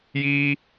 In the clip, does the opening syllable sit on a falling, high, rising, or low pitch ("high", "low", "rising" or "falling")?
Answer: high